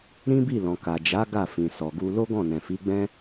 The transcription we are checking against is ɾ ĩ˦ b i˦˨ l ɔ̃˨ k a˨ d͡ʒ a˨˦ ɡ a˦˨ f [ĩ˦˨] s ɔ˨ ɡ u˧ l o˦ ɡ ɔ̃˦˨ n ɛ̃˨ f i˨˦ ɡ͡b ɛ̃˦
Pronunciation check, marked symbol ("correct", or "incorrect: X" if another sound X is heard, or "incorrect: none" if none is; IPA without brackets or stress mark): incorrect: ĩ˨